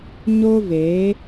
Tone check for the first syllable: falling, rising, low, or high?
high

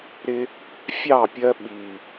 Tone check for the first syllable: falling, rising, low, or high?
high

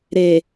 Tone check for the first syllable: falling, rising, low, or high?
low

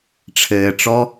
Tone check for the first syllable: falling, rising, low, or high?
low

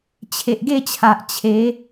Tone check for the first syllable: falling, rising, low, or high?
low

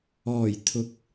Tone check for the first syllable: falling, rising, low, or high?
low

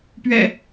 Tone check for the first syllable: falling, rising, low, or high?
low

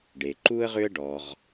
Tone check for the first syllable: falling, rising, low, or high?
low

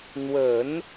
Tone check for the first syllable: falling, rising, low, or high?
low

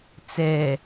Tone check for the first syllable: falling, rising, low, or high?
low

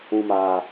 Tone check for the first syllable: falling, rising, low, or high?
low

